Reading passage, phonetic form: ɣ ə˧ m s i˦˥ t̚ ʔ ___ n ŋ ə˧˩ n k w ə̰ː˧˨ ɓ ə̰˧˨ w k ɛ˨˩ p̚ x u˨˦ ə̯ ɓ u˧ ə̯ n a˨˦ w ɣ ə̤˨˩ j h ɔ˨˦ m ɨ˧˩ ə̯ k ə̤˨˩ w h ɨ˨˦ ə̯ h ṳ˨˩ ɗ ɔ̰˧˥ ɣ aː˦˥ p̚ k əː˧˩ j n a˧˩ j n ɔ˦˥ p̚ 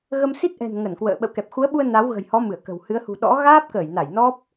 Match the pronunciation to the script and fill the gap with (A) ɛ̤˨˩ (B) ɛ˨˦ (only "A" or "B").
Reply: A